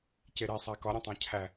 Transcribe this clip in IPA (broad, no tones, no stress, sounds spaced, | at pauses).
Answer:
c e ɾ e sˤ æ k ɒ ɾʲ õ tˤ æ̃ cʰ æ